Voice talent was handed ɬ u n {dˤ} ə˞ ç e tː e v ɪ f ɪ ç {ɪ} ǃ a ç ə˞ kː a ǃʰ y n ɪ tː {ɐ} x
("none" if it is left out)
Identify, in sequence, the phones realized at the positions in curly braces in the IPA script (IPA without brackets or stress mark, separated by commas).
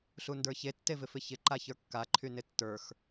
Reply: d, ɪ, ə˞